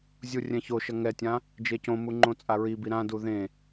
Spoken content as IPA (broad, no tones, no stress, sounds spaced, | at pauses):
zʲ u rʲ ɛ̃ ç o ʃ ʌ ŋ ɛ tʲ ã | d͡ʒ e c õ m u ŋ͡ǃ õ t͡sʼ a ɹ i b i ɾ ã d u ð ẽ